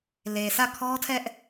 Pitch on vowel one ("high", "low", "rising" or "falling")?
low